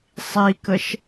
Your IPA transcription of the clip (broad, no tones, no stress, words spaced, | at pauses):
sˤikəʃ